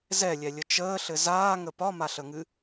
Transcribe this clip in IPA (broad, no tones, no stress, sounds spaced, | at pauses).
z ɛ lʲ ɛ lʲ ə t͡ʃ əː ɬ ɘ z aː ŋ ə p ɒ m a ɬ ə ŋ ɨ